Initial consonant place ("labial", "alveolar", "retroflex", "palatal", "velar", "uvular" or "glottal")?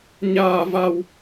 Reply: palatal